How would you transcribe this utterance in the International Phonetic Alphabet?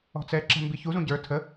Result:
ɔ̤ t͡s ɛ ǁ ɛ̤ m b i ç u z ũ ɟ ə˞ tʰ ə

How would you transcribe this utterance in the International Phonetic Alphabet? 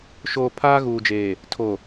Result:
ʃ oː˨ pʰ aː˦ ɣ uː˨ d͡ʒ eː˨ | tʰ o˨

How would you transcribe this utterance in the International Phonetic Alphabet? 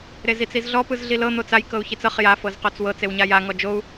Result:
ɾ e z i t͡s i z ɮ ɔ p ɯ z ɮ i l ɤ n̪ o t͡s a j k ɤ u̯ ç i t͡s ɤ χ j a f ɤ z q o t͡s w ɤ t͡s e w ɲ a j a ŋ ɔ d͡ʒ o u̯

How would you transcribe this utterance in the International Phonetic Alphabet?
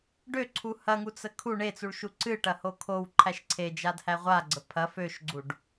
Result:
ɖ ø ǀʰ u h ɐ ŋ u t͡s ə kʰ u ɳ e t͡s u ɭ ʃ u ǀ ɨ ʈ ɐ h o kʰ o w ǃʰ æ ʃ ǀʰ e d͡ʒ a d h æ ʁʷ a ɡ͡ǀ ə pʰ ɐ f ø ʃ ɡ͡ǀ u ɖ

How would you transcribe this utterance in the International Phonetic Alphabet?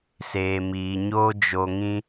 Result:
s eː˨ m iː˨ ɲ oː˦ d͡ʒ o˧ ŋ ĩ˦

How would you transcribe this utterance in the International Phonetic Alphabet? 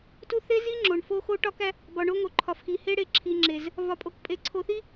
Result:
t u˦ θ e˦ z i˦ ŋ͡ǁ o˨ ɳ f o˦ x o˦ ʈ ɒ˦ k æ˦ | b ɒ˨ ɳ o˦ ŋ o˨ ǃʰ ɒ˨ f x i˨ h e˦ ɽ e˨ ǁʰ i˨ ŋ͡ǁ e˨ z | v ɒ˨ pʼ o˨ k pʼ e˨ ǀʰ o˨ θ i˦

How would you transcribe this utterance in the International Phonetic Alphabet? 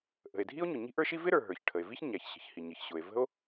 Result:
ʔ ə̤˩ e̯ dʱ i˥ o̯ ɲ ʊ˩ ɲ i̤˥ ʔ ə˞˥ ʃ i˥ v ɪ˥ ɾ ə˞˩ ɦ ə˞˩ ç ʈʰ ə˩ e̯ v i˥ ç ɲ æ˩ ç ɕ ə̤˩ ç h i˩ ɲ ɪ˩ ç ɕ ʊ˩ e̯ v ə̤˥ o̯

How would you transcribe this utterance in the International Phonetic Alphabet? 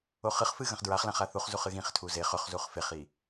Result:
o χ ɨ χ f ɨ ɣ ɐ̃ χ d ɹ a χ l ã χ a θ u χ z u χ ɨ ɣ ĩ χ tʰ u z e χ ɵ χ z u χ f e χ i

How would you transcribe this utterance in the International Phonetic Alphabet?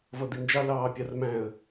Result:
v ʌ d̪ i n d͡ʒ ɑ l ɑː pʲ ɑ r m æ̃ ə̯

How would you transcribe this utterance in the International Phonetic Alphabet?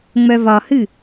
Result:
ŋ͡m œ v ɒ h ɨ

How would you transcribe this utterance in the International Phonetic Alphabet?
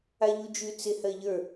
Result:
a ʎ u d͡ʒ ʉ t͡s ɪ h ɜ ʎ ə˞

